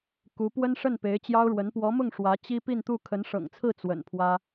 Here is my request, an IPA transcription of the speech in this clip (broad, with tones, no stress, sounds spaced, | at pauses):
k u˧˥ p w ə˥ n ʂ ə˥˩ n p e˧˥ ɪ̯ t͡ɕ j ɑ˥ ʊ̯ ɻ w ə˧˥ n p w ɔ˧˥ m ʊ˥˩ ŋ ʂ w ä˧˥ t͡ɕ i˥ p i˥˧ n t̪ u˥˩ kʰ ə˧˥ n ʂ ɤ̰˨˩ ŋ t͡sʰ ɹ̩˥˩ t͡s w ə̰˨˩ n pʰ w ä˥